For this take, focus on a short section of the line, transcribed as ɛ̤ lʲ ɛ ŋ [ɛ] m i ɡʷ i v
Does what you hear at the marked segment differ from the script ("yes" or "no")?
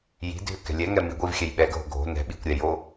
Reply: no